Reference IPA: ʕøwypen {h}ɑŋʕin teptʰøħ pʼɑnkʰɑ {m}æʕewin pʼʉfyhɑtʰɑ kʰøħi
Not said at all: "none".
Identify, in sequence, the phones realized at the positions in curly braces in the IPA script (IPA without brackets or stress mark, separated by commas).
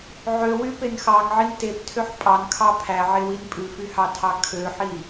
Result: x, pʰ